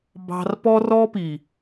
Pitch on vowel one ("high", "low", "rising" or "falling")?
high